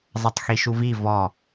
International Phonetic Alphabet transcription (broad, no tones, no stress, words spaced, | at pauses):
zˤʌtˤxiʃuvi vɔ